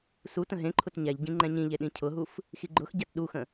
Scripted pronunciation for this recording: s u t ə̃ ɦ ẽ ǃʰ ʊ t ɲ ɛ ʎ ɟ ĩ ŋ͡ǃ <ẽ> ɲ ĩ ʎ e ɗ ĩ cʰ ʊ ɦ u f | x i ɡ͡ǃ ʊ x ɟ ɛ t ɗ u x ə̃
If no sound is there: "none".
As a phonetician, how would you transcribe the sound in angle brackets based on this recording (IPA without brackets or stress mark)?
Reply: ɛ̃